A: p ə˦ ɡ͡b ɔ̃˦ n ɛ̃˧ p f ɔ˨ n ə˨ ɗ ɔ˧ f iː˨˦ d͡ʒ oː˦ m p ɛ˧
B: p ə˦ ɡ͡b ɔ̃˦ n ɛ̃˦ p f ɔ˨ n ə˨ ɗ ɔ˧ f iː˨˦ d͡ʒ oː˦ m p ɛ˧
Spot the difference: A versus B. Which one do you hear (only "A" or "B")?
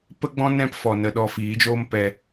A